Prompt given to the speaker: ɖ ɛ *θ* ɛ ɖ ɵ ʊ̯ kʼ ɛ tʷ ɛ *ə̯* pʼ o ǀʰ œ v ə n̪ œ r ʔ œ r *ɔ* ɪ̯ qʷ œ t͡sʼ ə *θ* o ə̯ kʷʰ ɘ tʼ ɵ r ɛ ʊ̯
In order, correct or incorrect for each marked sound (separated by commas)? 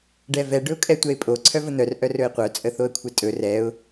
incorrect, incorrect, incorrect, correct